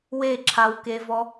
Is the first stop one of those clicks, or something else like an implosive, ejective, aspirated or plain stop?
click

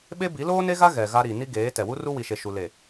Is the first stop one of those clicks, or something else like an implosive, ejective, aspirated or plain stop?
implosive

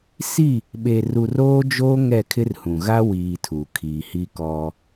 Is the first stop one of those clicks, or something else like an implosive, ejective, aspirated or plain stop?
implosive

